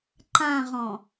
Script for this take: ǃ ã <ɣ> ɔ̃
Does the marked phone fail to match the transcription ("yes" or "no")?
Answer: yes